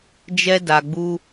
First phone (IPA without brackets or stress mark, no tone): d͡ʒ